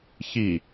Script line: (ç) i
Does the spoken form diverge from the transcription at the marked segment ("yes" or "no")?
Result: no